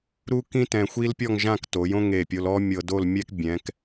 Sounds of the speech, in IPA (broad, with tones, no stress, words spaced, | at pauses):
ɾu˥kĩ˥ tɛ̃˧xʷi˥lpʲɔ˥˧ŋʒã˥˧k to˩˧jõ˥ ŋe˧˩pʲo˧lɔ˥ mʲɤ˧ do˥˧lmʲɛ˥k bʲɛ̃˩˧k